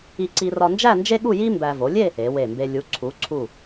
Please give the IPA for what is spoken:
i˧ ǀ i˧ r ɒ˧ n d͡ʒ æ˥˧ n d͡ʒ e˥ ɠ u˥˧ j i˥ m b æ˧ v o˩˧ lʲ e˥˧ | e˩˧ w e˧˩ m b e˧ lʲ u˩˧ ǀʰ u˩˧ ǀʰ u˧˩

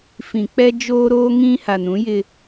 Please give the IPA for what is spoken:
f ĩ˨ k͡p ɛ˦ d͡ʒ oː˦ ɾ oː˦ ŋ ĩ˦ h a˨ n ũ˨˦ j ɪ˦

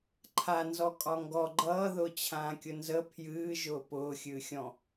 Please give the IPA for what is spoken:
ǃʰ a n z ɔ kʼ ɒ ŋ ɡ ɔ ɡ͡ǃ ʌː ð ʊː t͡ɕʰ ãː kʲ ʊ n z ə pʰ j ɨː ʒ ʊː p ʊː xʲ ɨː xʲ ɔ̃

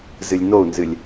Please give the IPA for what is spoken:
z ɨ lʲ n o u̯ n z ɨ lʲ

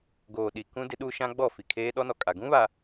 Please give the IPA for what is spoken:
ɡ oː˨ ɗ i˨ k ũ˦ d ɪ˦ ɗ uː˦ ʃ ã˦ ɡ͡b ɔ˦˨ f i˨ kʰ eː˦ ɗ ɔ˦ n ɔ˨ kʼ a˨ ɡ ũ˦ β a˨

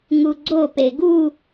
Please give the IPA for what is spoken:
ŋ u ɡ͡ǀ o p e ɡ u

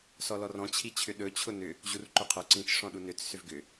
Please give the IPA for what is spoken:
s ɔ l ɔ r ɔ̃ t͡ɕʰ i t͡ɕʰ ʏ ɗ ɵ t͡ɕʰ ʊ n ʏ | ʑ u r ǃ ɵ qʰ ɵ ǀ ĩ t͡ʃ ʂ ɔ̃ ɗ u n ʏ t͡s s ʏ v ɡ ʏ

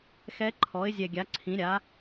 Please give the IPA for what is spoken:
x ɛ˧˥ ǃʰ ɔ˩˥ ɪ̯ zʲ ɛ˨˩ ɡʲ a˩˥ ǀʰ ĩ˩˥ ɾʲ a˩˥

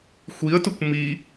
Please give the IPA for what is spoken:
xʷ i ə̯ t ʊ kʷ m i

